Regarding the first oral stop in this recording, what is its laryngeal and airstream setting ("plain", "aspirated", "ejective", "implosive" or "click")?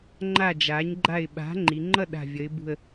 click